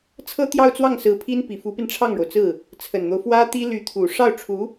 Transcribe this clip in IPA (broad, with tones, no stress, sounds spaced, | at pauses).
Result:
t͡sʰ ɤ˥ t̪ j ɑ˥˧ ʊ̯ t͡s w ɑ˥˩ ŋ s ɹ̩˧˥ pʰ i˥ n p i˨˩ f u˧˥ p i˧ n ʈ͡ʂʰ ɑ˥˩ ŋ ɻ o˩ ʊ̯ t͡s ɹ̩˥˩ | t͡sʰ ə˨˩ n n̪ o˦ ʊ̯ f w ä˥ t̪ i˥ l y˧˥ t̪ʰ u˨˩ ʂ ɑ˥˩ ʊ̯ ʈ͡ʂʰ u˧˥